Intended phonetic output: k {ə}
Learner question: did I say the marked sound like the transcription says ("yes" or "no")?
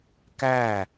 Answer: no